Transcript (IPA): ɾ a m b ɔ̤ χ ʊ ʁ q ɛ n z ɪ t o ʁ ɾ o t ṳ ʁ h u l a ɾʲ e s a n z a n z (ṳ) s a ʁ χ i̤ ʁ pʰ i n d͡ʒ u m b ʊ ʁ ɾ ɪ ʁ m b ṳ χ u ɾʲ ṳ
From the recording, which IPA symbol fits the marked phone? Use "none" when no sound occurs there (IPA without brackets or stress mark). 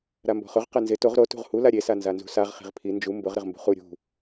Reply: ṳ